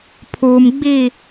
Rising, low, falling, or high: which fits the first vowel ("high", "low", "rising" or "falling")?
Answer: low